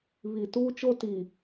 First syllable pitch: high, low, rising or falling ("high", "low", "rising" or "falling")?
low